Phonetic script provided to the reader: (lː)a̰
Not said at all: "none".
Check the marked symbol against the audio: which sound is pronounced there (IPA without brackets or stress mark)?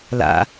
l